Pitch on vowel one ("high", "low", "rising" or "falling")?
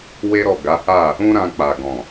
high